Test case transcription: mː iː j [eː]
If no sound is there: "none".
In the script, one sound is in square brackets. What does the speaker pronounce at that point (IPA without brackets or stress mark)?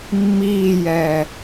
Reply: ɛː